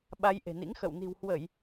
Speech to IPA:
ɓ a˧ j ʔ e̤˨˩ n ḭ˧˥ ŋ x ə̰˧˨ w n i̤˨˩ w h w ə˧˩˨ j

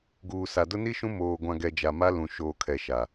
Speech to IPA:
ɡ uː˨ s a˨ d ʊ˦ n i˦ ʃ ũ˦ m oː˨ ɡʷ ã˨ ɡ ɛ˨ d͡ʒ a˨ m a˦ l ũ˨ ʃ oː˨ kʰ ɛ˨ ʃ a˨

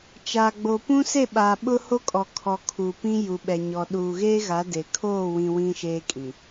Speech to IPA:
t͡ʃ aː˨ ɡ͡b o˨ p ũ˦ s e˦˨ ɓ aː˨ ɓ ʊ˦ h o˦ kʼ ɔ˨ kʰ ɔ˨ kʰ u˨ p ĩ˦ j u˨ ɓ ɛ˨ ɲ ɔ˨ ɗ uː˨ ɣ eː˦ ɣ a˨˦ d e˨ kʰ oː˦˨ w ĩ˨ w ĩ˦ ʃ eː˦ kʼ ĩ˨

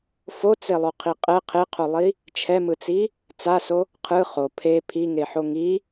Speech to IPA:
f o t͡s e lˠ o qʰ i qʼ ɛ qʰ e qʰ o lˠ i | t͡ʃʰ ɛ m ɯ t͡s i | t͡s a s o | qʰ ɯ χ o pʰ e pʰ i ŋ e ħ o ŋ i

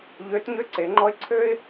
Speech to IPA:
ʎ ø˧˥ t ɲ ø˥ ǀ e˩˧ ŋ͡ǃ ɔ˥ ɪ̯ ǀʰ ø˥ ɪ̯

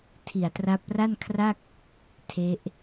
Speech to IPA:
tʰ i˨˩ a̯ t r a˦˥ p̚ r a˥˩ n kʰ r a˥˩ k̚ | tʰ e˦˥ ʔ

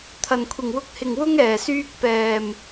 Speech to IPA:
t̪ʰ ɐ˨˩ n kʷʰ ɪ˨˩ ŋ w ʊ˧ k̚ h ɪ˨˩ ŋ w ʊ˥ ŋ ɛː˨˩ s yː˥ k̚ p ɛː˨˩ m

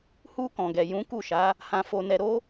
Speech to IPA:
h u˧ k ɔ̃˨ ɡ ɛ˨ j ũ˨˦ k u˦˨ ʃ a˨˦ | h ã˧ f o˧ n ɛ˧ ɾ o˦

